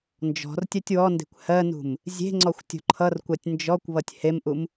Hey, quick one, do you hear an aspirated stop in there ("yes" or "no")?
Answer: yes